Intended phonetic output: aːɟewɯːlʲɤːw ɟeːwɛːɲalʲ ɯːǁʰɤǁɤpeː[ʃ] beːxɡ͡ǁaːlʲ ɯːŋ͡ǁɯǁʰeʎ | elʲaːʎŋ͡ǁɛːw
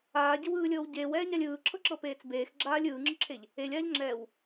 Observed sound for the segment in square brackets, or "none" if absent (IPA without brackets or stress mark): t͡s